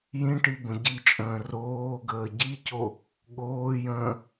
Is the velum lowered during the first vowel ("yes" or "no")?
yes